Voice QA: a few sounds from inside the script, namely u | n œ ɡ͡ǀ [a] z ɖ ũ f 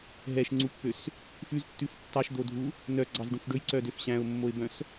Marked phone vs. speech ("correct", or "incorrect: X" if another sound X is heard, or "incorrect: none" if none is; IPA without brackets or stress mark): incorrect: ɑ